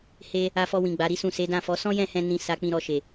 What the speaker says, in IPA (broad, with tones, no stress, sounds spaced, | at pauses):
h e˦ | a˧ f ɔ˧ w ĩ˨ ɡ͡b a˨˦ ɾ i˦ s ũ˦˨ s e˨˦ d ã˦˨ f ɔ˨˦ s ɔ̃˦ j ɛ̃˦˨ h ɛ̃˧ n ĩ˧ s a˧ k͡p ĩ˧ ɾ ɔ˧ ʃ e˨